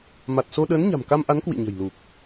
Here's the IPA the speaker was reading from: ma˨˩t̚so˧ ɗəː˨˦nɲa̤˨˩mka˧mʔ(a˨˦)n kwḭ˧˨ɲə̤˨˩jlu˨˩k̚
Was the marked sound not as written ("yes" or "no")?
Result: no